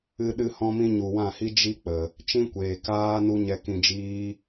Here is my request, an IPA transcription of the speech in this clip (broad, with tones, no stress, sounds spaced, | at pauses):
ɨ˧ ɗ ɨ˧ h ɔ̃˧ m ĩ˧ ɲ u˨ w ã˦˨ h i˦ d͡ʒ i˦ k͡p ə˨ | t͡ʃ ĩ˦ kʷ eː˨ k aː˦ n u˦ ɲ ɛ˧ k ĩ˧ d͡ʒ iː˦